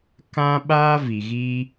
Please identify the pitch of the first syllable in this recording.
high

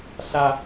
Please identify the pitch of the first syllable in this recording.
low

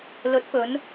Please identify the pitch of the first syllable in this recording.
rising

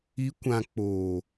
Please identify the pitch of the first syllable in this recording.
rising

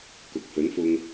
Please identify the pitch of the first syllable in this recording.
low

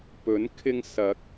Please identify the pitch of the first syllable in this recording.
rising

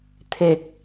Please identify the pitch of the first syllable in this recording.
low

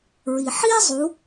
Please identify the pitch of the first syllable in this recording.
low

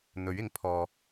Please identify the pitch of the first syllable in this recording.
rising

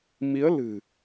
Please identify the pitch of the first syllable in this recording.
rising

